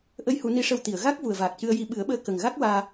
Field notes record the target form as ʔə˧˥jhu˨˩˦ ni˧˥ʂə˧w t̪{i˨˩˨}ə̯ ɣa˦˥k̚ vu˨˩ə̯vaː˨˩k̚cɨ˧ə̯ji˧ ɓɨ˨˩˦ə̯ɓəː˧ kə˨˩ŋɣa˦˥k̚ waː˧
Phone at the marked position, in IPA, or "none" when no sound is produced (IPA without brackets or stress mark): i˨˩˨